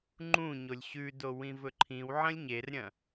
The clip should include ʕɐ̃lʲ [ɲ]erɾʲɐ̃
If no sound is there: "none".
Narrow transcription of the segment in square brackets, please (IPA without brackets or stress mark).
ɲ